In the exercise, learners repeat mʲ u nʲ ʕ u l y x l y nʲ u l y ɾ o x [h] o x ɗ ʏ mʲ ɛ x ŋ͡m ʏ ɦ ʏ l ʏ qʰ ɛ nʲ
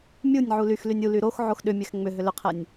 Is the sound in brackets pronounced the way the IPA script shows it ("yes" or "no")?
no